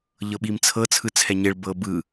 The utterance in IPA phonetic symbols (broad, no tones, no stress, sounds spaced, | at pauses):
ʎ ɤ ɓ i m t͡sʰ ɤ t͡sʰ ɯ t͡sʰ ɛ ɲ e ɭ b ɤ b ɯ